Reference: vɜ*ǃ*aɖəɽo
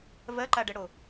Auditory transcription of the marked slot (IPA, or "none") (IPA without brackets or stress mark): ǃ